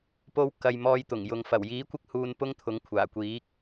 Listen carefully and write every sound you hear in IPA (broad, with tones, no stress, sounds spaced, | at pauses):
p o˥ w k ɐ˧ j m ɔː˧ j t̪ ʊ˨˩ ŋ j ʊ˨ ŋ f ɐ˨˩ w j iː˨˥ kʷ ɪ˧ k̚ h uː˨ n p ʊ˥ ŋ t̪ʰ ʊ˨˥ ŋ kʷʰ aː˨˩ kʷ iː˨˥ k̚